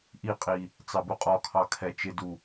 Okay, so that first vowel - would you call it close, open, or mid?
close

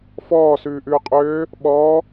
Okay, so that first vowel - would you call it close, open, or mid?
mid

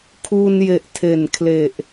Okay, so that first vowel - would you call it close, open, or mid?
close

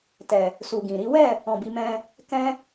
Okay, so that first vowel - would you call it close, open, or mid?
mid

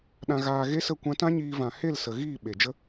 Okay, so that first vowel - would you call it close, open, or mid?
open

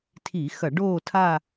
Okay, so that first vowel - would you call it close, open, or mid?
close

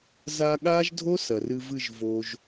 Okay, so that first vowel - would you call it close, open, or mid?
open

